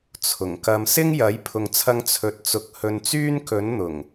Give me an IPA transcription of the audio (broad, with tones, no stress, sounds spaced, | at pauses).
t͡sʰ ʊ˨˩ ŋ k ɐ˧ m s ɪ˥ ŋ j ɐ˨˥ j pʰ ʊ˨ ŋ t͡sʰ ɐ˧ ŋ t͡sʰ ɵ˨ t̚ t͡s ʊ˨ k̚ h ɵ˧ n t͡s yː˥ n k ɵ˨˥ n n̪ ʊ˨˩ ŋ